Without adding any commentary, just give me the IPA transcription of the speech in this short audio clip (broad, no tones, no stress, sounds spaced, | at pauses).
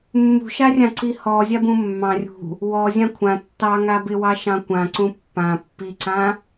mː ṳ ʃ a rʲ ã ǀ i h ɔ zʲ a b ũ mː ɑ̃ rʲ ṳ | w ɔ zʲ ã kʷʰ ã tː ɑ ŋ a b ɪ w ɑ ʃ ɑ̃ kʷ ã ǀ ũ pː ã pː i ǀ ã